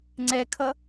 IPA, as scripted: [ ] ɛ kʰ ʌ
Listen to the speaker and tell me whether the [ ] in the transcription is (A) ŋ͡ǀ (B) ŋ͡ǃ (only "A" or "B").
A